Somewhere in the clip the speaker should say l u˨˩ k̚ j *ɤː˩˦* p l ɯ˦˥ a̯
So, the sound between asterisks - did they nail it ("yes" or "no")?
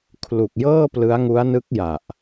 no